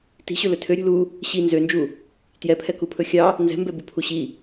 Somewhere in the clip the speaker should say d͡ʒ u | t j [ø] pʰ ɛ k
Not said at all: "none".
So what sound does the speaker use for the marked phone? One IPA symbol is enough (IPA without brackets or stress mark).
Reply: ɛ